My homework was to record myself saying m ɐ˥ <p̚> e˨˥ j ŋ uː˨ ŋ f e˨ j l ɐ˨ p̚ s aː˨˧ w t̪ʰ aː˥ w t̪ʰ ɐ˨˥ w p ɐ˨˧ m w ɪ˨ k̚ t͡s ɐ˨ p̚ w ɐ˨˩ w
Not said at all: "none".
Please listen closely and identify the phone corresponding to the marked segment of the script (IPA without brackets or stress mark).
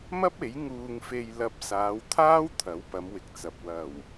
p̚